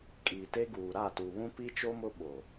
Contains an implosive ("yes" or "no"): yes